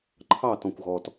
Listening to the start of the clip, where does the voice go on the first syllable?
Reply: falling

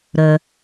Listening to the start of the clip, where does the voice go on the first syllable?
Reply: low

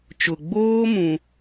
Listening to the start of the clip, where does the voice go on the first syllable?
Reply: low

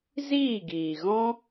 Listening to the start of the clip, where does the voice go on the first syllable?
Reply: falling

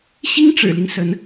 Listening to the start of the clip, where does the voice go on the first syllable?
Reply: high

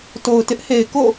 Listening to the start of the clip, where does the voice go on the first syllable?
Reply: low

